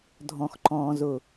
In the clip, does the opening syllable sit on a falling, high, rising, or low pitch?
low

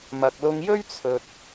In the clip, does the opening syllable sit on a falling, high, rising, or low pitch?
low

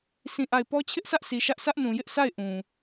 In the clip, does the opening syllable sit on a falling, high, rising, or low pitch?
falling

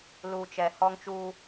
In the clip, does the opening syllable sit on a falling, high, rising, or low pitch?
low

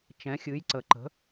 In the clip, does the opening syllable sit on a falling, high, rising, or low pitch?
rising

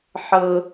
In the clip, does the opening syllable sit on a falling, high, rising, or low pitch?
high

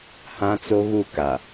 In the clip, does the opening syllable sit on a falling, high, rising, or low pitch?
high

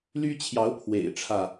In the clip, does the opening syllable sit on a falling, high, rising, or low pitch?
high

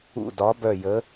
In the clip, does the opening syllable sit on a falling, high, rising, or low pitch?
falling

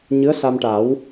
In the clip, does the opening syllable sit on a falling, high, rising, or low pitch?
rising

